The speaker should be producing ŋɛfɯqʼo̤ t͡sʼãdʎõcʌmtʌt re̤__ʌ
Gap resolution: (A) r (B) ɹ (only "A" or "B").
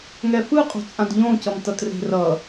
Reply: A